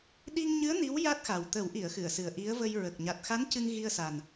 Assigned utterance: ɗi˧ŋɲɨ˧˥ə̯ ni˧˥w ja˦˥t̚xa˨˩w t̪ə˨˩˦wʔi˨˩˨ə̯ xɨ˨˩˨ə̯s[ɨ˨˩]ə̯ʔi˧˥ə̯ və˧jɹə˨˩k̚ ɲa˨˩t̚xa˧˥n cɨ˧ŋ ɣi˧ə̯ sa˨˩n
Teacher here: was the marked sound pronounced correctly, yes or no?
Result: yes